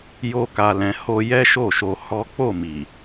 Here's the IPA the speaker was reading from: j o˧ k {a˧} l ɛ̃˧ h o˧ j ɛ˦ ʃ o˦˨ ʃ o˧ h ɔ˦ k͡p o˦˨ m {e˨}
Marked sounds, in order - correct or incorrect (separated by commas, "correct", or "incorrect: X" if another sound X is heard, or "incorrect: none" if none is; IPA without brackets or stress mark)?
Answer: correct, incorrect: i˨